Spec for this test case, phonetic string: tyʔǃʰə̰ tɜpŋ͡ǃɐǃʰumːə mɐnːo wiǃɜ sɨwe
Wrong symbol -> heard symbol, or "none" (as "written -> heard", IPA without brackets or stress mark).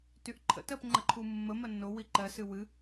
e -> ɨ